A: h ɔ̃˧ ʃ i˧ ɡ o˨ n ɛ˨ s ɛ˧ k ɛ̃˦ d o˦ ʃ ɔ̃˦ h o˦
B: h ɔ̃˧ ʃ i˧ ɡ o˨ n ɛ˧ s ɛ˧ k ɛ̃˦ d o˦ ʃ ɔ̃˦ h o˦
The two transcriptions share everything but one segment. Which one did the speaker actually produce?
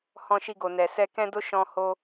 A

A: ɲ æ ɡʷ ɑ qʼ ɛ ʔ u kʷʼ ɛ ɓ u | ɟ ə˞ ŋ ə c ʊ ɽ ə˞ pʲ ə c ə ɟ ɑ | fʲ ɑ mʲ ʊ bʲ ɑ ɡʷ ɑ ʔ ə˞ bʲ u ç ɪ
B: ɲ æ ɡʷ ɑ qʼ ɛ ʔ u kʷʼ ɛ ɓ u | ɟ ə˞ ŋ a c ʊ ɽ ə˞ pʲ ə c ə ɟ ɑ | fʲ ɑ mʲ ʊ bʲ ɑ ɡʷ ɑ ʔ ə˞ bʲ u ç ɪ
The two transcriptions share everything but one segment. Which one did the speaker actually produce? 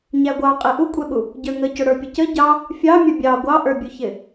A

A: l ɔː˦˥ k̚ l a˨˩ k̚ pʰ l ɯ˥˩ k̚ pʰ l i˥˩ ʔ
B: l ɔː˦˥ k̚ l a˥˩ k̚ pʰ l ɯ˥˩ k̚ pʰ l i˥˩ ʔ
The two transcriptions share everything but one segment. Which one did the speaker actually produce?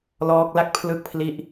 B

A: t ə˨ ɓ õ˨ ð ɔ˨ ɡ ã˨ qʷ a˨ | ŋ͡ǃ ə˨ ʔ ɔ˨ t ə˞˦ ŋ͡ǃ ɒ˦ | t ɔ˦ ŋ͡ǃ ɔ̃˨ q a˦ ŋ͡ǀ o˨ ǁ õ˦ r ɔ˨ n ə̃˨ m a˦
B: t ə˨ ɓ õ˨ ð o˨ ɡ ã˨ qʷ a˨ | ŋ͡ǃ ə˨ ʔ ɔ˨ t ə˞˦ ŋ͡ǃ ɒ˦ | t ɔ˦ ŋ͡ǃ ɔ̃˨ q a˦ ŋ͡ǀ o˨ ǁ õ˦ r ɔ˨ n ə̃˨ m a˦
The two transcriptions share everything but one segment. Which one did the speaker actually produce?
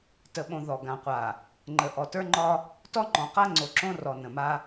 A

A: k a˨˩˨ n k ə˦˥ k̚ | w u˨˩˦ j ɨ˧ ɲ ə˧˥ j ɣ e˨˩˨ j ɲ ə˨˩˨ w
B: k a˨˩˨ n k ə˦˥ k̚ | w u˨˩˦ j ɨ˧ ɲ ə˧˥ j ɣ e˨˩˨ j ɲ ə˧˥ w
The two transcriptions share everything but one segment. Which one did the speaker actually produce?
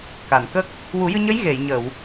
A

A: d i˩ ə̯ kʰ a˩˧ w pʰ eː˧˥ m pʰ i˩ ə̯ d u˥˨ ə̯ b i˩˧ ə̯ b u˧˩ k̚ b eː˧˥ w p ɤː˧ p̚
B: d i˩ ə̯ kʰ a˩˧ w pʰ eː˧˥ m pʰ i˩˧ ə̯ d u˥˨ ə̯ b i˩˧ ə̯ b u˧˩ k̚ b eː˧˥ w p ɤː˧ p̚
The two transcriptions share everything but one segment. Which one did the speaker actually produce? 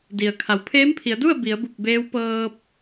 B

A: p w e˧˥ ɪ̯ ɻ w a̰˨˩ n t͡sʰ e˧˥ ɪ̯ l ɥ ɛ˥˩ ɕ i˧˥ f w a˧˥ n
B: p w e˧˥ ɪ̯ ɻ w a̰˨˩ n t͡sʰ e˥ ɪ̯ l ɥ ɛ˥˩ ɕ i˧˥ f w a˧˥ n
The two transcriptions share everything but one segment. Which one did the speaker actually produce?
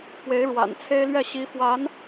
B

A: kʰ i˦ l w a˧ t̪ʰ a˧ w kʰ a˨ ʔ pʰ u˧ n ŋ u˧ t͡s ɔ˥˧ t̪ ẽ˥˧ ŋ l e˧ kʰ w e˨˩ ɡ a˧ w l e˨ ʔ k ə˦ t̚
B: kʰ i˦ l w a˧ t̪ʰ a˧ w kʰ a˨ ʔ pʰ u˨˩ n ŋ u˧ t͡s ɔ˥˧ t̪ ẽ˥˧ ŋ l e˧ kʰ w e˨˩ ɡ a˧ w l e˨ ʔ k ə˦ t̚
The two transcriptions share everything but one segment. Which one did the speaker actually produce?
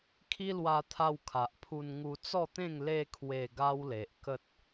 A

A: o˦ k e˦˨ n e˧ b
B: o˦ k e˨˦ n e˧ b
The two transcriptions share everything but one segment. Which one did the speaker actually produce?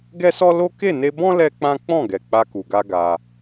A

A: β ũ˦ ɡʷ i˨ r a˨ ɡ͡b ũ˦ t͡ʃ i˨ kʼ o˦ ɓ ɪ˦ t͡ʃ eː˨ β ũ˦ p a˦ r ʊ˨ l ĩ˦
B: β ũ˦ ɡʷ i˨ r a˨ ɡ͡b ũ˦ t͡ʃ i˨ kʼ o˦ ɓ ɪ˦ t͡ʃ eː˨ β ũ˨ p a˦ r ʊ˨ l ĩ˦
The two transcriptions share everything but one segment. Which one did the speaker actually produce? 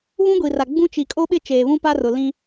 A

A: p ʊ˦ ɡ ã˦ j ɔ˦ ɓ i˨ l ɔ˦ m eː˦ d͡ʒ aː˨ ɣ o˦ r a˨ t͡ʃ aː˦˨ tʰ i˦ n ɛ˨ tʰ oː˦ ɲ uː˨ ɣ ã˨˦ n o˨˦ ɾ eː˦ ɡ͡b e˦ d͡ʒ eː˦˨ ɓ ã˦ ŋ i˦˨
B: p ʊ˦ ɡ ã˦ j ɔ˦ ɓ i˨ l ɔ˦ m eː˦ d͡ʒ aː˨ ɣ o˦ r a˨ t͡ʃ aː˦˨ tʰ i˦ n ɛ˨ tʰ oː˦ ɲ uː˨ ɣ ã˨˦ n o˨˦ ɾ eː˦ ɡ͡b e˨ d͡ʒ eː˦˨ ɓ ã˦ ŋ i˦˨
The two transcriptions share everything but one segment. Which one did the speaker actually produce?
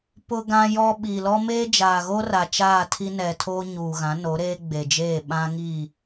B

